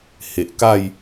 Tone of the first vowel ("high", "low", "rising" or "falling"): low